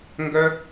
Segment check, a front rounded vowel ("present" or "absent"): present